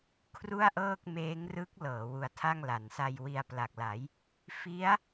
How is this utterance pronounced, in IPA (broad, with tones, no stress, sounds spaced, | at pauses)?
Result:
kʰ r u˥˩ a̯ ʔ ɤː˥˩ k̚ m eː˦˥ ŋ r ɯ˦˥ k̚ l ɤː˩˦ w u˧ a̯ tʰ a˥˩ ŋ l a˩˦ n s a˧ j w i˧ a̯ p l a˨˩ k̚ l a˩˦ j | f i˦˥ a̯